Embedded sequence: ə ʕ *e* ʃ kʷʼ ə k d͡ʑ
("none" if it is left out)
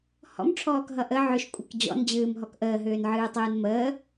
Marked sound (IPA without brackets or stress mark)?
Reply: ø